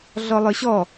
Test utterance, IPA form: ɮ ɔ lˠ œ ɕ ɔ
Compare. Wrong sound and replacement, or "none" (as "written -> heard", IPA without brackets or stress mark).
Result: none